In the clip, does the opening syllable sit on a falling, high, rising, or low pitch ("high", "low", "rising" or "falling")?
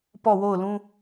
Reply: falling